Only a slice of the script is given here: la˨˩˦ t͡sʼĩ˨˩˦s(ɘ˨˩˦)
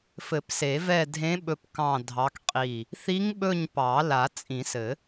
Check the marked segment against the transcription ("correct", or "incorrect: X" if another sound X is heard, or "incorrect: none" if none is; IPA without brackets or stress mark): correct